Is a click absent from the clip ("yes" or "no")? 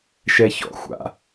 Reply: yes